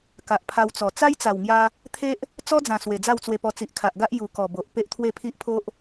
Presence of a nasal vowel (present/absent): present